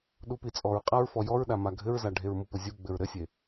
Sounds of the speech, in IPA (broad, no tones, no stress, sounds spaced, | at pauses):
ɗ u p i t͡sʼ ɔ ɹ qʼ a ɹ f ɔ j ɔ ɹ ɗ a m a ɡʱ ɘ ɹ z a ɖʱ e ɹ m u p ʊ zʲ u ɡ͡b ɘ ɹ ɾ ɘ sʲ e